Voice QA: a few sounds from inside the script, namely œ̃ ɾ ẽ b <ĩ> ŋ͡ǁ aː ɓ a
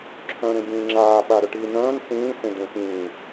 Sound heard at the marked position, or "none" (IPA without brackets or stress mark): ĩː